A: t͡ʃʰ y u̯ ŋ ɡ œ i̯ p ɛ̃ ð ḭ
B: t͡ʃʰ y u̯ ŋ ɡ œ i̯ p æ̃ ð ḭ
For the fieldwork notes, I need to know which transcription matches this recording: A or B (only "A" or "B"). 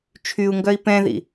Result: A